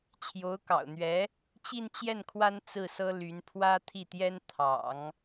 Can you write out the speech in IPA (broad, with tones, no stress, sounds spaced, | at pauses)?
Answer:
t͡ɕʰ j o˧˥ ʊ̯ k ɑ̰˨˩ ʊ̯ n̪ ɥ ɛ˧˥ | t͡ɕ i˥˧ n t͡ɕ j ɛ˥˩ n kʰ w a˥ n t͡s ɹ̩˥˩ s ɤ˥ l y˧˥ n pʰ w ä˥ t̪ʰ i˥˩ t̪ j ɛ˥ n t̪ʰ ɑ̰˨˩˦ ŋ